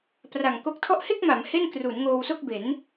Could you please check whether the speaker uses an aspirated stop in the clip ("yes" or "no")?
yes